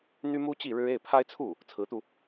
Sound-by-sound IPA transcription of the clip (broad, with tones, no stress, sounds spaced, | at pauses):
n̪ y˥ m u˥ t͡ɕ i˥˩ ɻ ɻ̩˥ e˥˩ ɪ̯ pʰ a˥ ɪ̯ t͡sʰ u˥˩ | t͡sʰ ɹ̩˧˥ t̪ u˧